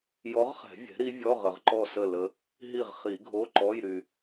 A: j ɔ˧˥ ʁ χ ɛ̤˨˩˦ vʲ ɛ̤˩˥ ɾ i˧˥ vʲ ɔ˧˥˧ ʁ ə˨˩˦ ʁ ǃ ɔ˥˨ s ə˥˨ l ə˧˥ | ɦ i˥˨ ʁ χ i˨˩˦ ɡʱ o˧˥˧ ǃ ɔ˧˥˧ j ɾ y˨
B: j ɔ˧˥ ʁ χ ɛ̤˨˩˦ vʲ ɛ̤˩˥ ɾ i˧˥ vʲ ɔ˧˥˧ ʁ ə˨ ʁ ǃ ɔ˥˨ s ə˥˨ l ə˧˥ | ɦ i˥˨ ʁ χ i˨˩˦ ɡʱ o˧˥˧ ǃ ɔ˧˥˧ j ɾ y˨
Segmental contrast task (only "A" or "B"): B